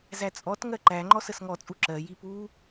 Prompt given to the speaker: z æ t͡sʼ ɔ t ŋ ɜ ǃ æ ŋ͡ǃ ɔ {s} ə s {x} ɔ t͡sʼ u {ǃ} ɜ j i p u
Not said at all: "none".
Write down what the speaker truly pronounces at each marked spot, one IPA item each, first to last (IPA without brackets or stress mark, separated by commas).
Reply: s, ŋ, ǁ